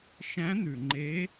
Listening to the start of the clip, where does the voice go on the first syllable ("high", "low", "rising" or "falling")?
rising